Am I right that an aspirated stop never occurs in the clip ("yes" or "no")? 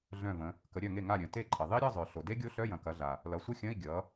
yes